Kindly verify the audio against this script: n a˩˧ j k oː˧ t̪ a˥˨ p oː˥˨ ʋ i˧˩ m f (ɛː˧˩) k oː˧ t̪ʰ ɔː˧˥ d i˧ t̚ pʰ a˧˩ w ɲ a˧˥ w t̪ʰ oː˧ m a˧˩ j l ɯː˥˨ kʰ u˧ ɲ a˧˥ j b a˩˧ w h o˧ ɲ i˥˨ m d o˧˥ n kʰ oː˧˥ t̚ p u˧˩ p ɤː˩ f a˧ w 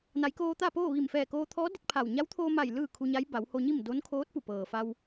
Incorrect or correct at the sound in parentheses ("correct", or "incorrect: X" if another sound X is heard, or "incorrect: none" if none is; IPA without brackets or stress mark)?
correct